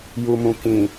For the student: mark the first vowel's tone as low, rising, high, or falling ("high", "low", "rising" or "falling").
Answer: low